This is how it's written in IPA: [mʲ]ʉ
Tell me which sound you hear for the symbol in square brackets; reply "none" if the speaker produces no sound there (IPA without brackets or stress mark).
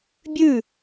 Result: bʲ